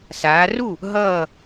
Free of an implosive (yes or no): yes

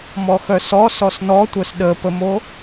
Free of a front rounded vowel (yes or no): no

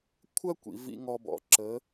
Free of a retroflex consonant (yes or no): yes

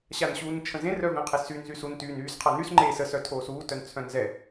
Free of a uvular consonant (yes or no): no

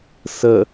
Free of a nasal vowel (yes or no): yes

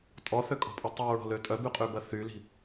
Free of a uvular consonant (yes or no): no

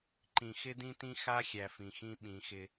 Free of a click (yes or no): no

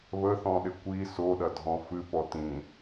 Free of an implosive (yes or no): no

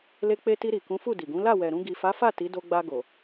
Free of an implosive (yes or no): yes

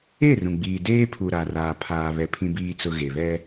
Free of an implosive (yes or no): yes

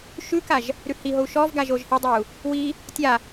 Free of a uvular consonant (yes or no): yes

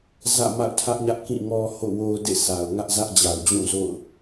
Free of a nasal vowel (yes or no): no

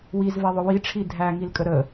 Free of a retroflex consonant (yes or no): no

